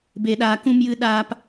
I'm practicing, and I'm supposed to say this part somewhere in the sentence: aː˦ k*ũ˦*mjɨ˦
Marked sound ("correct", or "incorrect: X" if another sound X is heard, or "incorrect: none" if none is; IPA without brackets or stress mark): correct